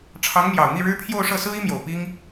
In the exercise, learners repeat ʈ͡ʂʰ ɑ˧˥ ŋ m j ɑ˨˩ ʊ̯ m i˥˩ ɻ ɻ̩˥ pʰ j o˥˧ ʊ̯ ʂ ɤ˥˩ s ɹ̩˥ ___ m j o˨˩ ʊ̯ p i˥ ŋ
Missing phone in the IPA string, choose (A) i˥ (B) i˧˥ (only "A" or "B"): A